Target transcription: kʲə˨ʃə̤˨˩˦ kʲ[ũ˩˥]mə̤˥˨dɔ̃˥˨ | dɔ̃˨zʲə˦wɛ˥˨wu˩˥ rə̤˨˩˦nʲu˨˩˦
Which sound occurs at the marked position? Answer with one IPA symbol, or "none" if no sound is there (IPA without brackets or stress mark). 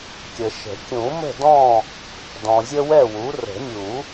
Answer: ũ˨˩˦